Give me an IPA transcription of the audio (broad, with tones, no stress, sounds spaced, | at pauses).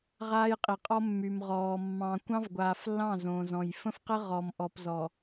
ʁ aː˦ j qʼ i˨ qʼ ɔ˦ mː y˨ m ʁ ɔː˨ mː ɑ̃˨ kʷ ɑ̃˦ v ɡʷ aː˨ f lː ɑ̃˦˨ z õ˨ z ɔ̃˨ j f ə̃˦ f q ə˦ ʁ ɔ˨ m ʔ ɔ˨ p z ɔ˨